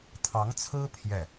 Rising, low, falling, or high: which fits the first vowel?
rising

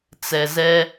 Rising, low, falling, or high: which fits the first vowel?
low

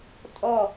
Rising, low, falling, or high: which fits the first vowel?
falling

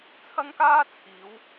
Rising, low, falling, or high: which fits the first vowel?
high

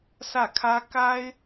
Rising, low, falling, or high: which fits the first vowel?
falling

